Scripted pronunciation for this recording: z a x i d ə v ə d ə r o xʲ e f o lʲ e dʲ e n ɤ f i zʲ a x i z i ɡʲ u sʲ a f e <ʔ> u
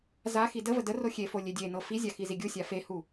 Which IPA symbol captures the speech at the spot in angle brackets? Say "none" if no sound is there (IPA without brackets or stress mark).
h